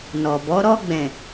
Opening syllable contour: low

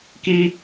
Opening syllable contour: low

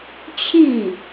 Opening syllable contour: falling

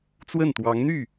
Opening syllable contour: falling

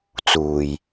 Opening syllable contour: low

